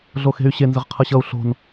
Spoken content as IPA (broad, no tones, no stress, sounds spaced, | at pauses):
ɮ o x e̤ y̯ ɕ e n z ə ʁ qʰ ʌ ɕ ʌ u̯ ɬ o̤ n